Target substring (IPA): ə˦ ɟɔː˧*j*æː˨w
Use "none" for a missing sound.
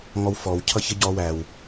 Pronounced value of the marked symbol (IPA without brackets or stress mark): w